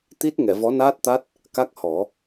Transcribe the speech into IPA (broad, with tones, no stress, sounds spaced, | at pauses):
t̪ i˦˥ t̚ ŋ ɛ˨˩˨ v ɔ˧˥ n aː˦˥ t̚ t̪ a˦˥ t̚ | k a˦˥ k̚ h ɔ˨˩˦